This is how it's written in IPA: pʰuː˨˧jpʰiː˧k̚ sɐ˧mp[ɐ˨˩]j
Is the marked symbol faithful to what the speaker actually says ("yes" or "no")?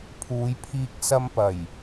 yes